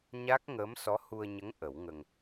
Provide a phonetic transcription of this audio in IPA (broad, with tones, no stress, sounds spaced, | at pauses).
ɲ a˦˥ k̚ ŋ əː˧˥ m s ɔ˧˥ h u˧ ə̯ ɲ ə˧˥ ŋ ʔ ə˨˩˦ w ŋ ə˧ ŋ